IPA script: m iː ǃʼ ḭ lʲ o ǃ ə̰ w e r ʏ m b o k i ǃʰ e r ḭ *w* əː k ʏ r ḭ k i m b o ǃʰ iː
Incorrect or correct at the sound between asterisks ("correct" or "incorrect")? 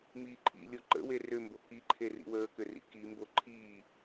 correct